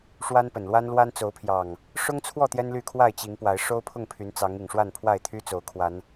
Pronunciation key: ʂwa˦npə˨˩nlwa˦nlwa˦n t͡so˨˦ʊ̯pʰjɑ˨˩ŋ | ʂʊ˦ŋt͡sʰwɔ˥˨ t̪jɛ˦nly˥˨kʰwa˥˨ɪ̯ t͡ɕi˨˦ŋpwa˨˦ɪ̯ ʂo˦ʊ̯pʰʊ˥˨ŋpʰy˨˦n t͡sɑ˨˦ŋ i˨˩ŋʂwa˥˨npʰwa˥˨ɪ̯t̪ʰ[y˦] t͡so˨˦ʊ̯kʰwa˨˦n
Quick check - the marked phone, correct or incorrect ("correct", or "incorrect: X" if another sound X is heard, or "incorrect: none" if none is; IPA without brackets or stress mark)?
correct